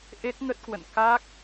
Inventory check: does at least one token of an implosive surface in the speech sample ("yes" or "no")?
no